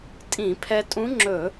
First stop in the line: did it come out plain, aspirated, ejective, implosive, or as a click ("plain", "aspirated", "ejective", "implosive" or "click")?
ejective